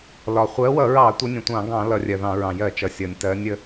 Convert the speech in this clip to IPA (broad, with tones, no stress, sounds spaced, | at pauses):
l ɒ˩ χʷ ɜ˨˦ w ʌ˧˩˧ ɹ ɑ˧˩˧ tʷ ə˨˦ nʲ ə̃˩ tʷ ɑ̃˧˩˧ ɡ ɑ̃˧˩˧ l ʌ˧˩˧ rʲ ɜ˩ ð ɑ̃˧˩˧ ɹ ɑ̃˩ j ɜ˧˩˧ t͡ʃ ʌ˩ sʲ ʌ˩ nʲ t ɜ˨˦ nʲ ə˨˦